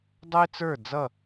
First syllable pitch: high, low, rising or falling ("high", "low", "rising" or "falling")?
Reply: high